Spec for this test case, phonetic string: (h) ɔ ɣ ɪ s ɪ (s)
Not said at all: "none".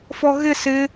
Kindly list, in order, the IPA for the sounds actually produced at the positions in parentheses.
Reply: f, none

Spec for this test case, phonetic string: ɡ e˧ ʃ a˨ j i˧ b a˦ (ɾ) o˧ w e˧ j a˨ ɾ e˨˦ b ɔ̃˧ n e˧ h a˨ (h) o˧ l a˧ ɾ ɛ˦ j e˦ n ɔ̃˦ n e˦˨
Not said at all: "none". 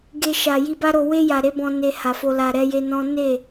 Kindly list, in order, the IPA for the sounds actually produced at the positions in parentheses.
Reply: ɾ, f

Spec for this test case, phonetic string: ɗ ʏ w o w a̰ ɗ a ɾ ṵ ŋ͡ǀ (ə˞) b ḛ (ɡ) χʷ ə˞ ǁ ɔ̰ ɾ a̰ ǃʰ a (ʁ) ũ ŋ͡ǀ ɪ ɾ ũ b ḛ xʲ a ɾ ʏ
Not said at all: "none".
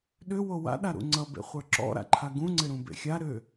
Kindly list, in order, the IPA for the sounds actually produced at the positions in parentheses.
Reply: ʌ, none, ɡ

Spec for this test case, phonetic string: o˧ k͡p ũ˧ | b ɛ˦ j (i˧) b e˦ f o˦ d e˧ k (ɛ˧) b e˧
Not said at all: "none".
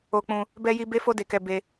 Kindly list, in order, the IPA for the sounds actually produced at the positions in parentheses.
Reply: i˦, ɛ˧

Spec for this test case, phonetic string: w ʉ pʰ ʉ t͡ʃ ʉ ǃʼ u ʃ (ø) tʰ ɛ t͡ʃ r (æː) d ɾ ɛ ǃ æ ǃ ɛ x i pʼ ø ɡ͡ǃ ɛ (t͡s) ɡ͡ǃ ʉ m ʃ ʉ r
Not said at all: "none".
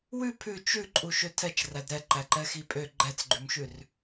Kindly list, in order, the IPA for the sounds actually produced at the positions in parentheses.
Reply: ø, æ, t͡s

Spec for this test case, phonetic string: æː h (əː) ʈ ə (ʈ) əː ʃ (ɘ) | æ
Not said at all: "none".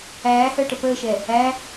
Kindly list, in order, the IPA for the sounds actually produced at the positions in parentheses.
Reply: əː, p, ɛ

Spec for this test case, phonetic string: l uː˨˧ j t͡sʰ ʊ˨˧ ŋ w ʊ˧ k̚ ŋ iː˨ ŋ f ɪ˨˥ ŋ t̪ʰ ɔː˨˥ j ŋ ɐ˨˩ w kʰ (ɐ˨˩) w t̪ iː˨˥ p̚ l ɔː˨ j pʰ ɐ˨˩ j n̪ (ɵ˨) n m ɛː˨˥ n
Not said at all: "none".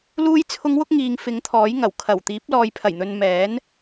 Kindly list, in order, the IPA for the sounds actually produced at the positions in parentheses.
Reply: ɐ˨˩, ɵ˨

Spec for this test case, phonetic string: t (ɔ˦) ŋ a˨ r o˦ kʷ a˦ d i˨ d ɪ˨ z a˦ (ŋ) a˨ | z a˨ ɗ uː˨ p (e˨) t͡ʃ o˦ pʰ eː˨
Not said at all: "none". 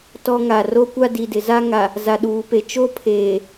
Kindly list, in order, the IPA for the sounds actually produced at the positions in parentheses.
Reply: ɔ˦, ŋ, e˨

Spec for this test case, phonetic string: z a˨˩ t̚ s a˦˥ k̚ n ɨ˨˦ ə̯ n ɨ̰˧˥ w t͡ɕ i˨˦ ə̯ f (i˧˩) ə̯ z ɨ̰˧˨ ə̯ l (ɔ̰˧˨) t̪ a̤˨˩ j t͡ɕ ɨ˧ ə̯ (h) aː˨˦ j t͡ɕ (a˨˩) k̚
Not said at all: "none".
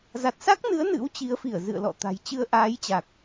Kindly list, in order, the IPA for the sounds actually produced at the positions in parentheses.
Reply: i˧˩, ɔ̰˧˨, ʔ, a˨˩

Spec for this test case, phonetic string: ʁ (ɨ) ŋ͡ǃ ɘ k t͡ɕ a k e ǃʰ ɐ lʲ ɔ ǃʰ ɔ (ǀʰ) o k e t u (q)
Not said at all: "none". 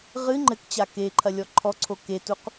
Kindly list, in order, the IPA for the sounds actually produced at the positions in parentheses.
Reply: ɨ, ǀʰ, q

